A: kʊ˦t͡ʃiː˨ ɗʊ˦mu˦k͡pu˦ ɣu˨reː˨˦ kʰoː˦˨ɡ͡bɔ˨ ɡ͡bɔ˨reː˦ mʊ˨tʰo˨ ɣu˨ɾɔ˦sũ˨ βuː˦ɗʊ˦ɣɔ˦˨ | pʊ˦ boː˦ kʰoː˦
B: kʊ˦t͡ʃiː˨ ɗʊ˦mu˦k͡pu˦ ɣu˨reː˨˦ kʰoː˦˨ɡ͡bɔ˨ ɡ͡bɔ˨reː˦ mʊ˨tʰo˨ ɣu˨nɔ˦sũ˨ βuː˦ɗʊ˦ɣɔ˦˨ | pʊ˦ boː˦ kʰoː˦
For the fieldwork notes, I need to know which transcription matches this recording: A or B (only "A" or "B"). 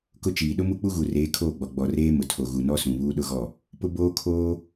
B